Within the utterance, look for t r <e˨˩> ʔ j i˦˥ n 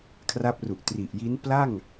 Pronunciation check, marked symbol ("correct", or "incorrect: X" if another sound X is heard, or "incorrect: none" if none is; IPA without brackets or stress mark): incorrect: i˨˩